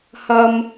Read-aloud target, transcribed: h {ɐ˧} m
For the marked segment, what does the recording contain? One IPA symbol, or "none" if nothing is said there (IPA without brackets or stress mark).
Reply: ɐ˧